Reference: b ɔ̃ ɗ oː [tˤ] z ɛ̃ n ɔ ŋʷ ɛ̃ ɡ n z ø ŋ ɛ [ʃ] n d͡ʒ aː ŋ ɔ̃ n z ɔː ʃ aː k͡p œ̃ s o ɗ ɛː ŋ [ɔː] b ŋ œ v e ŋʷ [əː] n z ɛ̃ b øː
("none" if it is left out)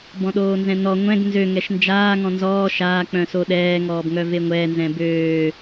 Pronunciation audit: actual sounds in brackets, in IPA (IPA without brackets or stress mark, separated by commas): n, ʃ, ɔː, ɛː